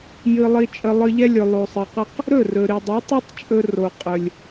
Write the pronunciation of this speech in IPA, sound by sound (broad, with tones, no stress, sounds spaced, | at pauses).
j ɨ˧ lˠ i˧ t͡ʃʼ ə˧ lˠ ɨ˧ ʎ ɛ˦ lʲ ɵ˨ lˠ o˨ sˤ ə˨ q ə˦ q | ɾ ɵ˦˨ r ɵ˨ ɾ i˨ dˤ ɛ˨˦ tˤ i˦ tˤ t͡ʃʼ ɵ˧ r o˨ qʼ ɵ˨ lʲ